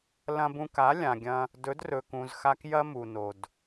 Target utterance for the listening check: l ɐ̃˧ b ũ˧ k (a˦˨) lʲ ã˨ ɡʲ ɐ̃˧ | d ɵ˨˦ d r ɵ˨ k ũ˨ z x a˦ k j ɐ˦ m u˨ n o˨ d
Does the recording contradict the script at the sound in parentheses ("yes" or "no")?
yes